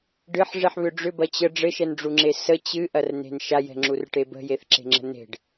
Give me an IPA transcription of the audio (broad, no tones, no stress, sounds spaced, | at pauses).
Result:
ɖ ɨ ħ ʐ e ħ β ʏ ɖ͡ʐ ʏ b ɐ t͡ɕ ə ɖ͡ʐ ɘ ʃ ɛ n ɖ͡ʐ u ŋ͡ǁ e s ə t͡ɕ ɨ ʔ ɐ r n e̤ n ʃ a j ɛ̤ ŋ͡ǁ u r ʈ e b ə̤ j e θ ǁ e̤ ŋ͡ǁ ə̤ n e̤ ɖ